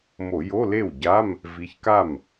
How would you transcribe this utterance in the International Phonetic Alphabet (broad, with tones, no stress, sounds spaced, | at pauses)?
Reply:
m o˧˩˧ j o˧˥˧ l e˥˩ w ɟ a˧˥˧ m | v i˨˦ ç k a˥˩ m